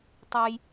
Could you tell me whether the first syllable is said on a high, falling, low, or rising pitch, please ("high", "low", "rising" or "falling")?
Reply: low